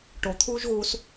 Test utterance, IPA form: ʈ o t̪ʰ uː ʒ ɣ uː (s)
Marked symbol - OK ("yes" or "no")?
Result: yes